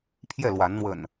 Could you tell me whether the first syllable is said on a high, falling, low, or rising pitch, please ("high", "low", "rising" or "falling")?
falling